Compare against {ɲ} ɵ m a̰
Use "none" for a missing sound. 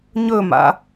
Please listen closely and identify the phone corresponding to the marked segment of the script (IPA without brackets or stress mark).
ɲ